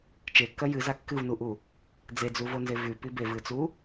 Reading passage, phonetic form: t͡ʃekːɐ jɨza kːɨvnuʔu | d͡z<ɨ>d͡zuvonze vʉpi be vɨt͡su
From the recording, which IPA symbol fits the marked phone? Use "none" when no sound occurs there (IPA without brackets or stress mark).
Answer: e